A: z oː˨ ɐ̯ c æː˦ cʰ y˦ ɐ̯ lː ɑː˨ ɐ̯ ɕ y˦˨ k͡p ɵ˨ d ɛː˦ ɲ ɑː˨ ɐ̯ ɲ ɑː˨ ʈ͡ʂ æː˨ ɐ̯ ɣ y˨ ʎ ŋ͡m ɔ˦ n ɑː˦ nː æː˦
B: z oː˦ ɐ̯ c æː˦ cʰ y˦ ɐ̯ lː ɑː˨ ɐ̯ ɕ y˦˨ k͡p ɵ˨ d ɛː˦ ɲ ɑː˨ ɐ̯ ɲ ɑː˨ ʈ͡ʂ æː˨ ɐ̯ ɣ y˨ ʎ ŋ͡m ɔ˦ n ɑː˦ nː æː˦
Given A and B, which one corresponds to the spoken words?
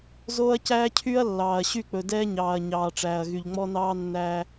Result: B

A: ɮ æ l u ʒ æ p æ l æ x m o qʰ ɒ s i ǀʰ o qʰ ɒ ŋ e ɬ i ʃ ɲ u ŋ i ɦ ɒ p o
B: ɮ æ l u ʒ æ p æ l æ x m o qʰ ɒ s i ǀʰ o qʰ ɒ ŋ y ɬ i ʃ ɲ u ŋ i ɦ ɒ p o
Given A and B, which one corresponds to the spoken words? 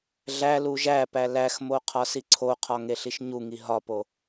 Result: A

